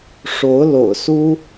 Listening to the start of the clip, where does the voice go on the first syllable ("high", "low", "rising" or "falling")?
rising